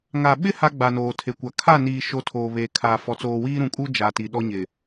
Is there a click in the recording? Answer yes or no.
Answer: no